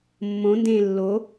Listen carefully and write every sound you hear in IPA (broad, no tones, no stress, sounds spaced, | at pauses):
mː õ n d ẽː lː o